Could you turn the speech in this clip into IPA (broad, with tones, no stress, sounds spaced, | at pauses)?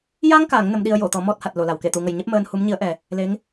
j a˧ ŋ k a˨˩˨ ŋ n ə˧˥ m ɗ i˧ ə̯ j o˨˩˨ t̪ ɔ˨˩˦ m ɔ˦˥ t̚ h a˨˩ t̚ l o˨˩˨ l a˨˩˨ w k e˨˩˨ t̪ u˨˩˨ ŋ ə˨˩ j ɲ e˦˥ p̚ m əː˧ n h u˧˥ m ɲ i˧˥ ə̯ ʔ ɛ˨˩ | l e˧˥ ŋ